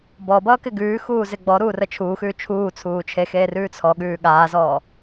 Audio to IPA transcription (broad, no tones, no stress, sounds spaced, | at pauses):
b ɔ b ʌː k ɪ ɡ ʉː x uː z ɪ ɡ͡b ɔ ɾ uː r ə t͡ʃʰ uː x ʉː t͡ʃʰ uː t͡sʰ uː t͡ʃʰ e x eː r ʉː t͡sʰ ɔ ɠ ʉː ɠ aː z ɔː